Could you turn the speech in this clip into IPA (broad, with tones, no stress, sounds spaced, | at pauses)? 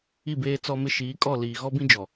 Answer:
i˦˨ b eː˦ t͡s ɔ˦ m ɪ˦ ʃ iː˨˦ kʼ ɔ˦˨ l iː˨ ɣ ɔ˦ b ĩ˦ d͡ʒ ɔ˨